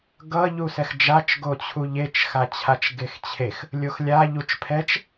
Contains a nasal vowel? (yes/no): no